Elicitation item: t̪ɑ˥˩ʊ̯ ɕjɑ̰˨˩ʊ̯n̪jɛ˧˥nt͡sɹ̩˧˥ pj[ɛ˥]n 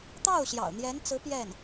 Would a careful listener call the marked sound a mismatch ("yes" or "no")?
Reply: yes